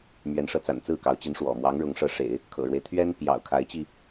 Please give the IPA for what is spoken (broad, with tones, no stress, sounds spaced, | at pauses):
m ɥ ɛ˧˥ n ʂ ɤ˧˥ t͡s a̰˨˩ n t͡s ɹ̩˥˩ k ɑ˧˥ ʊ̯ t͡ɕ i˧˥ n ʂ w ɔ̰˨˩ m w ɑ˧˥ ŋ ɻ ʊ˧˥ ŋ ʂ ɤ˧˥ ʂ ḛ˨˩˦ ɪ̯ | kʰ ɤ̰˨˩ ɻ w e˦ ɪ̯ t̪ʰ ɥ ɛ˥ n p j ɑ̰˨˩ ʊ̯ kʰ a˧˥ ɪ̯ t͡ɕ i˧